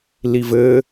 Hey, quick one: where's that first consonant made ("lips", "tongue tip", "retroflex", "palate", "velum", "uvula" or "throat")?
tongue tip